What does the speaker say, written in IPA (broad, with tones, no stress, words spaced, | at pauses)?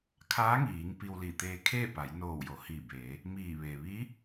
kʰaː˧˥ŋiː˩˧ŋ pi˧wli˧˩ t̪eː˧ kʰeː˥˨pa˩˧jnoː˧˩w jo˩˧hiː˧˩beː˩˧ | miː˧˩ʋe˩ ʋi˧˥